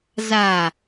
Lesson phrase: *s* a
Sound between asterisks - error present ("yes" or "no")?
yes